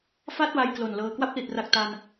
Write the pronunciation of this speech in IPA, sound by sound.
fa˥˩t̚ wa˧j klo˨˩nlɤː˧ kwa˥˩p̚li˨˩t̚ra˨˩k̚ ta˧n

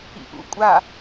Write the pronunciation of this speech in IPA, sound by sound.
ḭʔṵkʷʼa

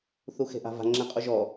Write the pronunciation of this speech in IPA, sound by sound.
θuxe̤ʔa̤va̤ ŋ͡ǁẽqʼuʒɔ

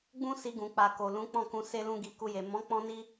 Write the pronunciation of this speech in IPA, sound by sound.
ɡ͡bũ˦ si˧ɡũ˨k͡pa˨ ko˨lũ˨˦k͡pɔ̃˦˨kũ˧ se˦lũ˦ɡi˧ ku˧je˨ mɔ̃˨˦ k͡pɔ̃˦ni˦

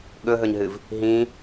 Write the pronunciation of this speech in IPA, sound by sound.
ɠɵɦɵɲɦɨv | ɦĩ

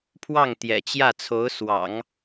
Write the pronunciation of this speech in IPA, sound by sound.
pʰwɑ˥˩ŋt̪jɛ̰˨˩t͡ɕjä˥˩t͡sʰo˧˥ʊ̯ swɑ̰˨˩˦ŋ

